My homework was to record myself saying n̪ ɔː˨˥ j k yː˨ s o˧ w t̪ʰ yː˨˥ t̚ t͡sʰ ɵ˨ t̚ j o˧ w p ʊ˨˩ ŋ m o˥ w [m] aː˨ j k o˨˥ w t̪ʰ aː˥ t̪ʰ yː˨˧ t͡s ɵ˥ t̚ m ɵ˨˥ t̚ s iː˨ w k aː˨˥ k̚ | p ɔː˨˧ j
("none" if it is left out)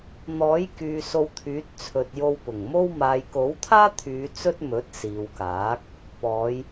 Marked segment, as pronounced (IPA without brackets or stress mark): m